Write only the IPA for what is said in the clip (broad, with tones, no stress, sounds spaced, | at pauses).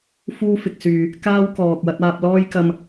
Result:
f uː˥ f ɪ˨ k̚ s yː˨ | k aː˥ w k ɔː˨ k̚ w ɐ˨˥ t̚ aː˧ p̚ l ɔː˥ j k ɐ˧ m